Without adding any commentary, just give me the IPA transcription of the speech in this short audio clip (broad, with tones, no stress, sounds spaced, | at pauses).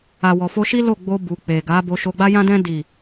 a˨ w ɔ˨ f o˧ ʃ i˦ l o˦˨ ɡ͡b o˧ b u˨ k͡p e˨ ɡ a˨˦ b o˧ ʃ o˧ ɡ͡b a˦ j ã˦ d ɛ̃˦ d i˦˨